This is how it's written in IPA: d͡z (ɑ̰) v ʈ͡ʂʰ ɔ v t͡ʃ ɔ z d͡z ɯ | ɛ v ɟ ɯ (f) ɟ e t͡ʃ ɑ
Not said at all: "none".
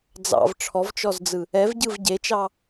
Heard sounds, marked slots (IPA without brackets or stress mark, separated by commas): ɑ̰, v